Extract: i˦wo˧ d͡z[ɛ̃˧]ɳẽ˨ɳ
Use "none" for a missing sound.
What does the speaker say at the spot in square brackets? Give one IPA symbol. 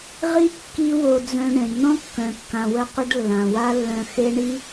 œ̃˧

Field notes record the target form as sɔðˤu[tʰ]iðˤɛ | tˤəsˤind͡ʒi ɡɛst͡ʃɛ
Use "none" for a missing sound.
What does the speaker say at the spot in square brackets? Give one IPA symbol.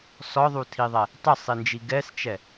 tʰ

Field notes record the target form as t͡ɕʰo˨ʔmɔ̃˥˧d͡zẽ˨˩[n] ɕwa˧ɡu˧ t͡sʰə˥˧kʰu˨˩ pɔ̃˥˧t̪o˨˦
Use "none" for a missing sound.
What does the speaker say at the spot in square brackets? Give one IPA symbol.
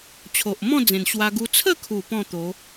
n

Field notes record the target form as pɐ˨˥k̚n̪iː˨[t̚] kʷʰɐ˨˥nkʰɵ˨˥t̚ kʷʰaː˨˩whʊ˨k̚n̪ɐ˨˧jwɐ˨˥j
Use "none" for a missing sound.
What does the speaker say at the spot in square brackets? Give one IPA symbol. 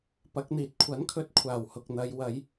t̚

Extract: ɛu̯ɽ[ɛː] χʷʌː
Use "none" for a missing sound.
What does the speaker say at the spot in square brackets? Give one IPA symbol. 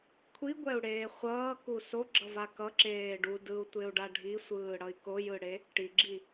eː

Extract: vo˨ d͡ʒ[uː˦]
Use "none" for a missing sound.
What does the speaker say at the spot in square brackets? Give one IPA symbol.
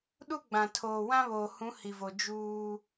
uː˦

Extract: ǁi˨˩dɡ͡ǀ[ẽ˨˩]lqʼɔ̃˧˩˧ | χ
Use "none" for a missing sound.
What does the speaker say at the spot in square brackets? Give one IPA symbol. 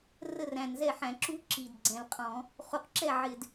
ɛ̃˨˩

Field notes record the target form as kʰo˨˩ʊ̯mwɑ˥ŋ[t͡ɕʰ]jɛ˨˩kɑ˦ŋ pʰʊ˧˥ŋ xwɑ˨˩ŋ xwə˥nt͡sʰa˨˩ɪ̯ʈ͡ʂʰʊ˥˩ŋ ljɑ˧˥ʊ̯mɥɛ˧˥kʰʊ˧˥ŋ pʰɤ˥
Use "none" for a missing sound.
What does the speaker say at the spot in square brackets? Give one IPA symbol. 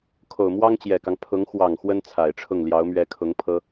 t͡ɕ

